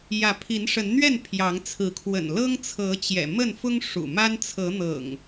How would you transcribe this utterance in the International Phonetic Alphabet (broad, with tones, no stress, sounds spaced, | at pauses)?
j ä˨˦ pʰ i˨˦ n ʂ ə˨˦ n n̪ ɥ ɛ˥˨ n pʰ j ɑ˨˦ ŋ t͡sʰ ɹ̩˨˦ kʰ w ə̰˨˩ n l ɤ˦ ŋ t͡sʰ ɤ˨˦ t͡ɕ j ɛ̰˨˩ m ə˥˨ n f ʊ˦ ŋ ʂ ṵ˨˩ m a˦ n t͡sʰ ɤ˨˦ n̪ ɤ̰˨˩ ŋ